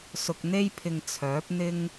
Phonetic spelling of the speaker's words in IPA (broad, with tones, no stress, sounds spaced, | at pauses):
s ʊ˧ k̚ n̪ e˥ j pʰ ɪ˧ ŋ t͡sʰ œː˨˥ p̚ n̪ ɪ˥ ŋ